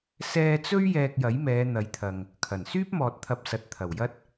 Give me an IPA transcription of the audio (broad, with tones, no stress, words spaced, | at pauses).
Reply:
sɛː˧t͡sɵ˥ɥ jɛː˧k̚jɐ˨˥jmɛː˨˧ n̪ɐ˨˥jt̪ʰɐ˨ŋ | kʰɐ˨˩n syː˥p̚mɔː˨t̚t̪ʰɐ˨˥p̚ sɐ˨t̚t̪ʰɐ˨˩wjɐ˥t̚